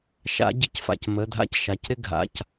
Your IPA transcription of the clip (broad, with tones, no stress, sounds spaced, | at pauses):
ʃ a̰˧˥ ɟ ɪ˧ c f a̰˧˩ c m ə˩˧˩ dʱ a̰˧˥ c ʃ a˩˧˩ c ɾ ɪ˥˧ ɡʱ a̰˩˧˩ c